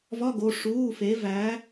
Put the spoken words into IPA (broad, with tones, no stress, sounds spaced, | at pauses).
v ɒ˧˥˧ ɡ o˩˧˩ ʂ uː˩˧˩ f e˩˧ v æː˩˧